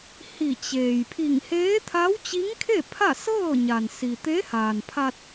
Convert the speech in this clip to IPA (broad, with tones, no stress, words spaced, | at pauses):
hi˧˩t͡ɕeː˩j pʰi˧˩ŋ heː˧˥t̪ʰa˧˥wt͡ɕi˧˥ŋkʰe˥˨ pʰa˥˨sɤː˥˨ ɲa˩n si˩t̪e˧˥haː˩n pʰa˧t̚